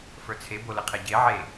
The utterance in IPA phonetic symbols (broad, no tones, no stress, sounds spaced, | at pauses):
f ə˞ t͡sʰ e b o l ə qʰ ɛ ɟ e ʕ e